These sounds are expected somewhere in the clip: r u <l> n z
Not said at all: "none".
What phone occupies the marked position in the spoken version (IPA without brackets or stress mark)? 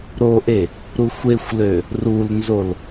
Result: l